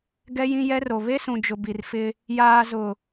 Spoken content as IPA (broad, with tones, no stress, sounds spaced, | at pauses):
ɡ ɛ˦ j ĩ˦ j ɛ˦ r o˨ β e˦ s ũ˨ d͡ʒ ʊ˨ b i˨ r f ɪ˦ | j aː˨ z ʊ˨